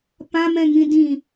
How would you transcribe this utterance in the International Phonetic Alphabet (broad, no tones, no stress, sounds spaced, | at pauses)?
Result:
p ã m ɛ̃ ŋ ĩ d ĩ